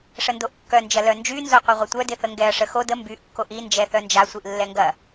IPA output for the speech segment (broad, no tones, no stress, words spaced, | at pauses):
ʂəndoʔkːœ nd͡ʒɐlœnd͡ʒy nzoqʷɐʁʷɐtʷœ dɪθəŋɡɛɐ̯ ʂəxo də mbyʔ kːoʔi nd͡ʒɛθœnd͡ʒa sʷiʔlːɛŋɡɐ